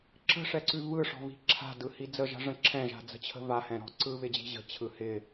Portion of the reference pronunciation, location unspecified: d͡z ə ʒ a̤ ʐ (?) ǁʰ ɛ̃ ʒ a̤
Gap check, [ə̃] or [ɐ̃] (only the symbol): ə̃